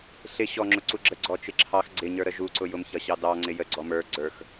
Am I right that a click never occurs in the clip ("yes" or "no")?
no